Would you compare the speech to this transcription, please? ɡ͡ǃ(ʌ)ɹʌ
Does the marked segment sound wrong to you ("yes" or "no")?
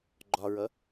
yes